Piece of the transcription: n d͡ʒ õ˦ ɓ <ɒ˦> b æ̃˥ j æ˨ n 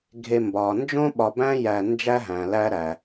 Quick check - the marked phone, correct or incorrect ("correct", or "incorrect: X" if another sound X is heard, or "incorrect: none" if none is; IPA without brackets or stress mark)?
incorrect: ɒ˨